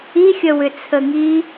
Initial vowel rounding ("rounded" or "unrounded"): unrounded